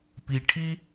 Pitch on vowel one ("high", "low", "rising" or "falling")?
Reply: low